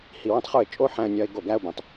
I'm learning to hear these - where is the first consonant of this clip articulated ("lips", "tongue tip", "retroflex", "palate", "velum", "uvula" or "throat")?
throat